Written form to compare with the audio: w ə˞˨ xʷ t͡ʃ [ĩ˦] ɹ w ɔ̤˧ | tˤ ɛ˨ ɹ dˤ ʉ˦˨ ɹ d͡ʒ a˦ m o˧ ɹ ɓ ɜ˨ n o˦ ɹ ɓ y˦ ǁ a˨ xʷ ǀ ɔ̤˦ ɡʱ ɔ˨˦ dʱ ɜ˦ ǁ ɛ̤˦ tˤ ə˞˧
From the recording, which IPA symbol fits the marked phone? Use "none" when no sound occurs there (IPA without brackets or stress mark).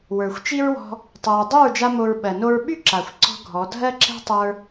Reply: i˦